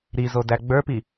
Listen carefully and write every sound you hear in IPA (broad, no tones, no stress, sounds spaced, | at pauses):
ɾ i z o d æ ɡ͡b ə˞ p i